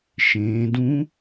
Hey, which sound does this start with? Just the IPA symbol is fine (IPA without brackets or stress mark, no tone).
ʃ